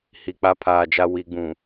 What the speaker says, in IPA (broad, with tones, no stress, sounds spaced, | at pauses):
h i˨ k͡p a˦ pʰ aː˨ d͡ʒ a˦ w i˨˦ ɡ͡b ũ˨